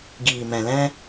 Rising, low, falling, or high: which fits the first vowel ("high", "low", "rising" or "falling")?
low